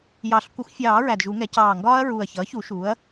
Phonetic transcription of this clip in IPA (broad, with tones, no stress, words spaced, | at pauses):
jɑ˨˩˦ɬ kʷʌ˨˩˦xʷfʲɑː˨˩˦ ɹæ˨˩dʒu˨˩˦ŋɛ˩˥ cɑː˨˩ŋɡɒː˦˥ɐ̯ ɹuː˨˩ɐ̯çʌː˩˥çu˨˩˦ ʃuː˩˥ɐ̯